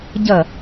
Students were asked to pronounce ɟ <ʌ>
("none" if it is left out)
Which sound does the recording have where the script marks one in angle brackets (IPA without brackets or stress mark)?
ʌ